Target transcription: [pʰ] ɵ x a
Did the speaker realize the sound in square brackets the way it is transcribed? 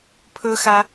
yes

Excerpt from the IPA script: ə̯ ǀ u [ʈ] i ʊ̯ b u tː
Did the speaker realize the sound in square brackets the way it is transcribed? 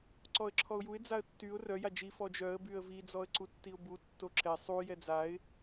no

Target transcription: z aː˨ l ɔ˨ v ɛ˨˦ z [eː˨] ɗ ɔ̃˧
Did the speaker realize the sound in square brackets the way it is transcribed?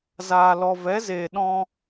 yes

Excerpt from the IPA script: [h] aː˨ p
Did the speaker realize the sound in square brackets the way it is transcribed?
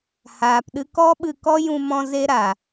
yes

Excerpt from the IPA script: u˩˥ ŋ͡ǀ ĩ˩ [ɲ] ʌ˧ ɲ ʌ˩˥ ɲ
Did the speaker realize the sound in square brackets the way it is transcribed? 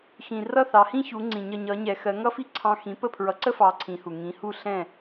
yes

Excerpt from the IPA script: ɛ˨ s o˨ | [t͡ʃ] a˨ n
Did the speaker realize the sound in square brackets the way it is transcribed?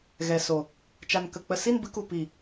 yes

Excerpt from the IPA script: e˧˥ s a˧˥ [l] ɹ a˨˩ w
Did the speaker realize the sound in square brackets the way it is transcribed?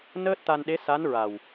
no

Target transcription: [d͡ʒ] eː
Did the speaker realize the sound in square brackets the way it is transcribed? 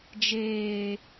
yes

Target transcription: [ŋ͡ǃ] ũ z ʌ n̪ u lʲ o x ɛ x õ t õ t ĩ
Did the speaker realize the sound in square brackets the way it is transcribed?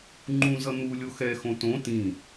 yes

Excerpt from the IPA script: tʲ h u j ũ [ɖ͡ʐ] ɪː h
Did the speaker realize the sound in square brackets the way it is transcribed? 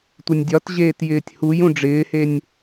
yes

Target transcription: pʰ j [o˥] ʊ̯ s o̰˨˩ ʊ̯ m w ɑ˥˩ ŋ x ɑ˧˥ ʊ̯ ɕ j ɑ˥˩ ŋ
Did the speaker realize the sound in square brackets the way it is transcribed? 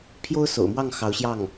yes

